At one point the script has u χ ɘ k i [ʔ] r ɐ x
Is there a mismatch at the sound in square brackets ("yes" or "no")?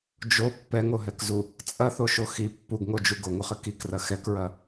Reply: yes